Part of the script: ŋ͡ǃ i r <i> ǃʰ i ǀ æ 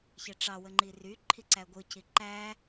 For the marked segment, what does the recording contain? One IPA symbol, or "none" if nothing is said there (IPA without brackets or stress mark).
y